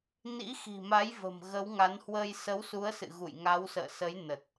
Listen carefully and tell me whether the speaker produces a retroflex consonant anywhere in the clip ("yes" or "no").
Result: no